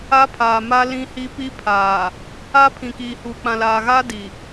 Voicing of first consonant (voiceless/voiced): voiceless